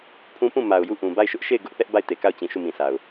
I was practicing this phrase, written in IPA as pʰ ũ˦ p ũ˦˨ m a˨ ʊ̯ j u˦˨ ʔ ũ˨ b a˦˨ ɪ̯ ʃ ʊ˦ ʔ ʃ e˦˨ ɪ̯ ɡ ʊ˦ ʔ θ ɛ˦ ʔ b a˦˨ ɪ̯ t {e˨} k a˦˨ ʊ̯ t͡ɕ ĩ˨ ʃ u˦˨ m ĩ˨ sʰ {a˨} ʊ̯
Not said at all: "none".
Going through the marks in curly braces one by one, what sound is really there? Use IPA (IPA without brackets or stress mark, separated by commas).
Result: e˨, a˨